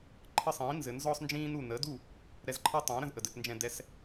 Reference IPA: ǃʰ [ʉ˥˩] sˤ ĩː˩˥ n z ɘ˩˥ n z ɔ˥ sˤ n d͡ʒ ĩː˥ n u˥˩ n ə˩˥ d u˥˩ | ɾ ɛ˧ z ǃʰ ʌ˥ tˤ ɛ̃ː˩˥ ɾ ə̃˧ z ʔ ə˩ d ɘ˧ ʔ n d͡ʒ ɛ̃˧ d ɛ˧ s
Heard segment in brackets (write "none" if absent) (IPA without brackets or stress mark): ə˥˩